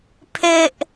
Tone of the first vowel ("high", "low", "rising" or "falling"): high